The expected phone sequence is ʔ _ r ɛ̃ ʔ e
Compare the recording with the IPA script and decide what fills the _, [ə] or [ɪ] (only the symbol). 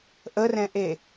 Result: ə